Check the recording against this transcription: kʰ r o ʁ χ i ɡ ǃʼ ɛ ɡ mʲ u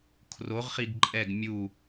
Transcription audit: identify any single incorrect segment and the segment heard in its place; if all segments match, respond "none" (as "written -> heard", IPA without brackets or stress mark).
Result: none